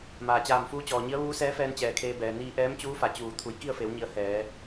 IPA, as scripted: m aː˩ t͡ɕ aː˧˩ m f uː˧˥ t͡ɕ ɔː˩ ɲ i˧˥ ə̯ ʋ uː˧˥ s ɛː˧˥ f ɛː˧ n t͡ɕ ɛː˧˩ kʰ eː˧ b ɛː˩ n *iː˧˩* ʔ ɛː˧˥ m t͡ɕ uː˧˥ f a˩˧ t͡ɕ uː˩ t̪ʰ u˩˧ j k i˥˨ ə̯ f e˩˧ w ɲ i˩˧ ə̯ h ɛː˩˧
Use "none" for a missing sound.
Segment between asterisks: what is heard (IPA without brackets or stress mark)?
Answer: iː˧